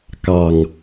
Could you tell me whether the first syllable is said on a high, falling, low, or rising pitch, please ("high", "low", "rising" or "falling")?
low